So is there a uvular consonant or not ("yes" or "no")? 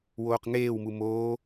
yes